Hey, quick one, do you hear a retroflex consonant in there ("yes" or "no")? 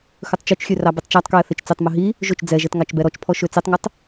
no